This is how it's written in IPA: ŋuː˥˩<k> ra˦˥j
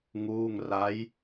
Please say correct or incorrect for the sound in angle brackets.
incorrect